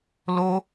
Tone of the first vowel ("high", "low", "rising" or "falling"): high